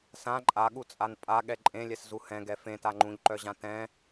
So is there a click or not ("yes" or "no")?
yes